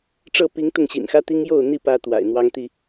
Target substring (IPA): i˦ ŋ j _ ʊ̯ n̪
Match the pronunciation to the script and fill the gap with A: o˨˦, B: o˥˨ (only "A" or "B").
B